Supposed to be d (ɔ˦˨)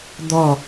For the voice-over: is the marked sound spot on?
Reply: yes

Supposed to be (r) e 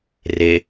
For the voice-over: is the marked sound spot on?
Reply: yes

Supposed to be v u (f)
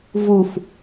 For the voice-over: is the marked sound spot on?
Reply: yes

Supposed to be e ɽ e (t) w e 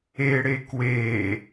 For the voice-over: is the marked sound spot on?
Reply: no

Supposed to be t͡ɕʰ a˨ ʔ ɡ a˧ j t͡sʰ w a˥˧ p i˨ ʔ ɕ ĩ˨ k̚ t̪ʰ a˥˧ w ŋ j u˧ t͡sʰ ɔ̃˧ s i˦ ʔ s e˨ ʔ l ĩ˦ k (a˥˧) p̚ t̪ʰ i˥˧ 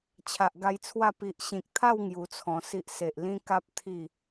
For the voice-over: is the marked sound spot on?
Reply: no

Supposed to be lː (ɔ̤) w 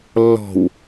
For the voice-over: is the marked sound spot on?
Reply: yes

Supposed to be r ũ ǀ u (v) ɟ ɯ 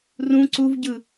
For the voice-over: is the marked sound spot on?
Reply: yes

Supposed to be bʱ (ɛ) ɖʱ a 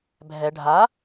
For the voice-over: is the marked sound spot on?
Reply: yes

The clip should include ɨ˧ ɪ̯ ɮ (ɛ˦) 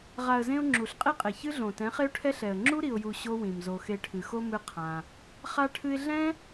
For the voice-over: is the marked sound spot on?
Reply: no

